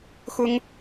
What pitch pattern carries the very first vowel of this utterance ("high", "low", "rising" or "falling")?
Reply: high